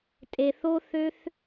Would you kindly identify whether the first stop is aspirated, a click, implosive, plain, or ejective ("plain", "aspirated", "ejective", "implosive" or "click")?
ejective